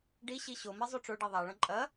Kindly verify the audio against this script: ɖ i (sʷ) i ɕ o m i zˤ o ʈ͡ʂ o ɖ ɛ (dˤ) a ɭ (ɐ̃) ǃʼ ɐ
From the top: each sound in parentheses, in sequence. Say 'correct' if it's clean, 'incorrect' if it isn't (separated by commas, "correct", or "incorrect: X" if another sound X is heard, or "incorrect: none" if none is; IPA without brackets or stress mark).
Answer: incorrect: ɕ, incorrect: ðˤ, correct